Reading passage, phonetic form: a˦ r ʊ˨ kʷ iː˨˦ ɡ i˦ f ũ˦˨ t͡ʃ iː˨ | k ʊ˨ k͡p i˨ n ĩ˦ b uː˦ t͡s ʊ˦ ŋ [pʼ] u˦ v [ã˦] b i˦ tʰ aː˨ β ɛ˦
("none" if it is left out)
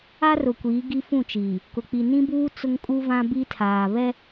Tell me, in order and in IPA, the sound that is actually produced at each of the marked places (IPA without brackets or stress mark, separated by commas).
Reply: kʼ, ã˦